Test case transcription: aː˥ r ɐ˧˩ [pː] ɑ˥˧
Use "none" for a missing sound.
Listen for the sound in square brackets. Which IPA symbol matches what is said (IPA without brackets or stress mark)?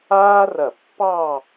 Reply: pː